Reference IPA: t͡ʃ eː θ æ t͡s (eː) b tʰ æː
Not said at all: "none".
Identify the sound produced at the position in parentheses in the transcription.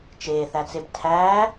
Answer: e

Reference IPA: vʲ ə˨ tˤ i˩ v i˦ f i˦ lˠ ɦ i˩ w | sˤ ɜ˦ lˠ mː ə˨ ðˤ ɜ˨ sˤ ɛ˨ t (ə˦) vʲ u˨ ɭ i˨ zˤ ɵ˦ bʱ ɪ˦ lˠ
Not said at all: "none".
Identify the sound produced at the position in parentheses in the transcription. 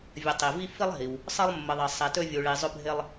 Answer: ɵ˦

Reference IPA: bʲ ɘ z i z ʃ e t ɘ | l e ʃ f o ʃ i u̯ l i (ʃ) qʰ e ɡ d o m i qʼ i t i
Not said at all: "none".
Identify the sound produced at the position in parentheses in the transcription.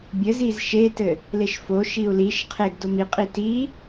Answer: ʃ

